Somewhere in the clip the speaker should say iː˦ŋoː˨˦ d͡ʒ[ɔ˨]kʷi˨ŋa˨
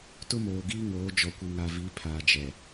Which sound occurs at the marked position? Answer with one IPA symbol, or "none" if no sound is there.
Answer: ɔ˨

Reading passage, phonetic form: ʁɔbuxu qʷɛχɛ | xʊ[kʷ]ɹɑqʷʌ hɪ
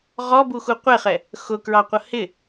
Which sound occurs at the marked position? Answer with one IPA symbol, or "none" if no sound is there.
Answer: k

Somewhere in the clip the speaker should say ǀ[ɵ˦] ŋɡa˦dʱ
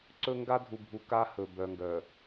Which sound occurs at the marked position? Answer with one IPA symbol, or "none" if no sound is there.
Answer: ɵ˦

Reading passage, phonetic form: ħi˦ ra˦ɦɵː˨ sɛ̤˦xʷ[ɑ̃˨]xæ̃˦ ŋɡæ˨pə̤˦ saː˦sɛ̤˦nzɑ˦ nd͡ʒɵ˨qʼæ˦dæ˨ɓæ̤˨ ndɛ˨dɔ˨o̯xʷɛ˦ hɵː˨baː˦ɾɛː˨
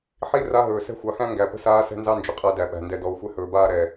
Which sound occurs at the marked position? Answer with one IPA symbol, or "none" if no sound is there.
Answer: ɑ˨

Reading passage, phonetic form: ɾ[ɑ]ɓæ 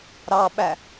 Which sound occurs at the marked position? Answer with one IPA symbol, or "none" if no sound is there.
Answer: ɑ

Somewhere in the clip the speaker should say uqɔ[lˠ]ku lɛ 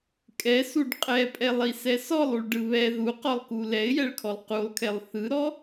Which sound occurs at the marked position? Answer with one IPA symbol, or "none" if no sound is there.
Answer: lˠ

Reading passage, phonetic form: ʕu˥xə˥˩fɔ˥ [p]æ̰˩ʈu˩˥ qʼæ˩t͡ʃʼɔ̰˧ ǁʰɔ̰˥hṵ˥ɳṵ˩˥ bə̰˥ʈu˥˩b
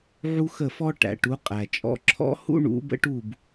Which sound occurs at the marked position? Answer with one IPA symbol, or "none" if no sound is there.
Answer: ʈ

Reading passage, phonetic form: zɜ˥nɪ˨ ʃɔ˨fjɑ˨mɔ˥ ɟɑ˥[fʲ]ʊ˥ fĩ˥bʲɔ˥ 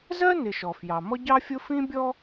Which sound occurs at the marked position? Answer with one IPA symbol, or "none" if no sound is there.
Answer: fʲ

